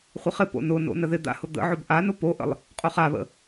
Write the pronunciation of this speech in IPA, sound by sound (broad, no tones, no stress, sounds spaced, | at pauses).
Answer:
χʷ ɪ χ ɪ p o̰ n ʊ n o̰ n ə ð ɪ d̪ a̰ h ʊ d̪ ə̰ ʕ ʊ b ʔ a n ʊ p o ʔ ə̰ lˠ | qʼ ʊ χ a β ə̰